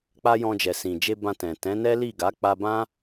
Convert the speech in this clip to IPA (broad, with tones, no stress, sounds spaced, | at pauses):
k͡p a˦ j ɔ̃˧ d͡ʒ ɛ˨ s ĩ˨ d͡ʒ e˧ b ã˧ t ɛ̃˨ t ɛ̃˨˦ n ɛ˦ l i˦˨ ɡ a˨˦ k͡p a˧ b ã˦